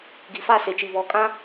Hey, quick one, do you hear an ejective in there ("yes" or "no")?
yes